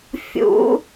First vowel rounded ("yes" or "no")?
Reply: yes